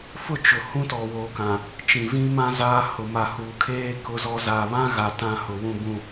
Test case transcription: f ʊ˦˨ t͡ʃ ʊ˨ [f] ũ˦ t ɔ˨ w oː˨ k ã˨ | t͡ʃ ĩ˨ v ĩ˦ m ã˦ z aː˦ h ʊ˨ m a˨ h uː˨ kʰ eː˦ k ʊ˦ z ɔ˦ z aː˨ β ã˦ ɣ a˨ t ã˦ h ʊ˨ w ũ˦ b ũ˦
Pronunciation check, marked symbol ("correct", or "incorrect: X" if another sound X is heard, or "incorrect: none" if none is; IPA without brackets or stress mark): incorrect: h